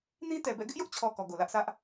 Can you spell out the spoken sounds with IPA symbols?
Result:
nĩ˦tɛ˨bɛ̰˦˨ ɡɪ˦ʔjʊ˦ʔt͡ɕʰɔ˨ kɔ˨ɡo˨lä˦ʔsä˦ʔ

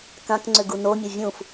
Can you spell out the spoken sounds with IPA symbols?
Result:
kãkŋ͡ǀʏ ɡunomʲɐ vʲũf

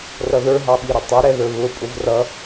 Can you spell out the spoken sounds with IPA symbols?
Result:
rʌðə˞ɦɑɓi ɾʊtˤɪɾɛðə˞ βʊ pʼʊvrʌ

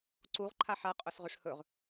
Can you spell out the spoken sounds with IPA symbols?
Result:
ǀuʁ ǃʰaħa qʼɵsʁɵʂhɵʁ

